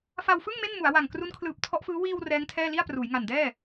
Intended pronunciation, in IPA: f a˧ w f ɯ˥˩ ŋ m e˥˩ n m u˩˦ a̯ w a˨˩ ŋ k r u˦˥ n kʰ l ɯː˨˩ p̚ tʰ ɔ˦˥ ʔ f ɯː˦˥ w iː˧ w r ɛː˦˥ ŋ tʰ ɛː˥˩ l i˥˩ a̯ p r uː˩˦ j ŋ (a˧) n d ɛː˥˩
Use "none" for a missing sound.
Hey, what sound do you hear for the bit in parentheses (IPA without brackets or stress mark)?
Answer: a˨˩